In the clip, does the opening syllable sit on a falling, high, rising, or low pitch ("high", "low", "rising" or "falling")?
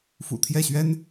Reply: low